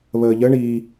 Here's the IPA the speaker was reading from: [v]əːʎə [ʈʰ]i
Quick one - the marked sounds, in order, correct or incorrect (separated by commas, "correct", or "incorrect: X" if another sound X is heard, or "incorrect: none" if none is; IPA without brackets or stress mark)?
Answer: incorrect: β, incorrect: ɳ